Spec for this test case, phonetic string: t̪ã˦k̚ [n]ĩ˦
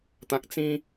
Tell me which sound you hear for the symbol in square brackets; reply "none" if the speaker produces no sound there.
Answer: t͡s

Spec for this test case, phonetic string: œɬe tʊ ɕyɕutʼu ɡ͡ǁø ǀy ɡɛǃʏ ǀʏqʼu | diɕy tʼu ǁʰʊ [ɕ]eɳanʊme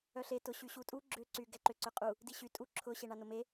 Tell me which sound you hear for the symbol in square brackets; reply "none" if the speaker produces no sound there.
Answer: ɕ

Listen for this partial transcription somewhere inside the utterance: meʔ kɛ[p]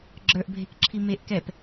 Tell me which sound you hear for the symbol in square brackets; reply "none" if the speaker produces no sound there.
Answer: p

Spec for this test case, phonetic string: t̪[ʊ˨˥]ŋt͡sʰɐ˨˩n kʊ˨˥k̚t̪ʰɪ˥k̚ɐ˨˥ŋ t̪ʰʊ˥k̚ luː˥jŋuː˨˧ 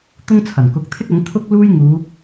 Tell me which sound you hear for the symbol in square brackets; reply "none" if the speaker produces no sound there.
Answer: ʊ˥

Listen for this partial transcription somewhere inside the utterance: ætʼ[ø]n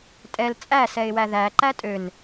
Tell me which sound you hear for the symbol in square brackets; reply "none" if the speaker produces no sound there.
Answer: ø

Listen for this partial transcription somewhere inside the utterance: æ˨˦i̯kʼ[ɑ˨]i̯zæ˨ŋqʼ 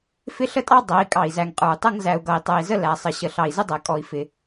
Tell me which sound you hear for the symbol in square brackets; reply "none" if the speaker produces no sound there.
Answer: ɑ˨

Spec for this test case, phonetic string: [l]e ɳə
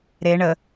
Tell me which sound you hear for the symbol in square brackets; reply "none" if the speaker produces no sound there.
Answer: ɾ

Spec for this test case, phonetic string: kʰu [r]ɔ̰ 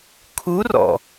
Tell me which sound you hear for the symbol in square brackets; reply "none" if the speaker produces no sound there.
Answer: r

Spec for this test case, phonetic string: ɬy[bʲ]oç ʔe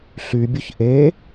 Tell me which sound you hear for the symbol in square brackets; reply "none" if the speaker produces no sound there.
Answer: bʲ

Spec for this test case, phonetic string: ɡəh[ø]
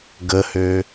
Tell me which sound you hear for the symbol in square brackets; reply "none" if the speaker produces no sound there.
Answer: ø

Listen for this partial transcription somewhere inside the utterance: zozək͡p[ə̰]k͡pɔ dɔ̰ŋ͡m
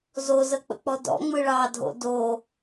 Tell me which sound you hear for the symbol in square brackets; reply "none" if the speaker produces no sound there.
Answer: ə̰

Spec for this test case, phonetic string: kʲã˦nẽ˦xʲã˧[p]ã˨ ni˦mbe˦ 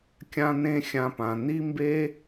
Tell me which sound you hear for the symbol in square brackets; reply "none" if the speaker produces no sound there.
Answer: p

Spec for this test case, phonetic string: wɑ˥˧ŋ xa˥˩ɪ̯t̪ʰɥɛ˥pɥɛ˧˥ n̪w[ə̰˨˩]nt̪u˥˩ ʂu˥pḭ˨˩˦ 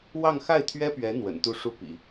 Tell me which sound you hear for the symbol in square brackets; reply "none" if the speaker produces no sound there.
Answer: ə̰˨˩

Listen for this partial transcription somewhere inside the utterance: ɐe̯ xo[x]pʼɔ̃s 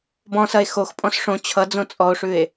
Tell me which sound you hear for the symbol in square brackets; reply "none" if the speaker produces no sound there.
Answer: x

